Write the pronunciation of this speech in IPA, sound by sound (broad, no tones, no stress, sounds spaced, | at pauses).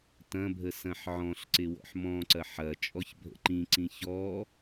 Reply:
t ɐ̃ bʱ ə s ɐ̃ ħ ʕ ɔ̃ ɬ ǀ ɪ w ɔ̰ ħ m ɔ̃ ǀ ɐ ħ ɐ t͡ʃʼ ɔ ç bʱ ə̰ ǃ ĩ ǀ ĩ ç ɔ